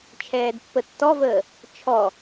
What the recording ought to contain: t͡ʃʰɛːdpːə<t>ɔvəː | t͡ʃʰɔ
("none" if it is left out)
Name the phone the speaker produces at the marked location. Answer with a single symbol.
tː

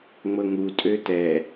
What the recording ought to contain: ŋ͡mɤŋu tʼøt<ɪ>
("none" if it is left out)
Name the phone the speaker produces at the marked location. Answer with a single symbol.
ɛ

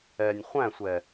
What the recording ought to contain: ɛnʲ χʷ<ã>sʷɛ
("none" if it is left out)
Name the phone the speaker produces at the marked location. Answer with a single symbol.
æ̃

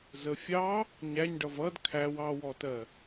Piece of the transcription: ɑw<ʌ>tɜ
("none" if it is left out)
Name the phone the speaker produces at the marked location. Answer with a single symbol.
ɔ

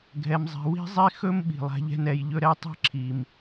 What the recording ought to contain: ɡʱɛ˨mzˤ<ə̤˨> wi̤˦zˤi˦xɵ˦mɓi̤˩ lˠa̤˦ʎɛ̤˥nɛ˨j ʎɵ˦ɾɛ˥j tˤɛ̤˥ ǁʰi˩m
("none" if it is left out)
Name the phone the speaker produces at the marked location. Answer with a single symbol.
ɛ̤˨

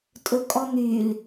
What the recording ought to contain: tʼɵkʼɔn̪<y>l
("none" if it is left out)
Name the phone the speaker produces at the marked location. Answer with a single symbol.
y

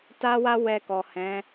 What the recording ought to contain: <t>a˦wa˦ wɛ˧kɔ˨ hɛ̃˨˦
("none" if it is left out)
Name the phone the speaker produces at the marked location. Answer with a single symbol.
t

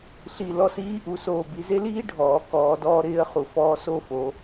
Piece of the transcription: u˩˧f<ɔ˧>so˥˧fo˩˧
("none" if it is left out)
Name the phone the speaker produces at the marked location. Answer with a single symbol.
ɔː˧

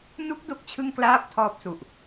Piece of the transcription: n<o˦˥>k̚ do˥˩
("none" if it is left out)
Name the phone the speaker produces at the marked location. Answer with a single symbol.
u˦˥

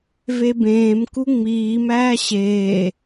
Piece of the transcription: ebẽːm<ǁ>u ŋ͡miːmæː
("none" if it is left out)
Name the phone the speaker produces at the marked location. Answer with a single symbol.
k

